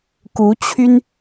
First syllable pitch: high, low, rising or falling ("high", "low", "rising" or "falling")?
rising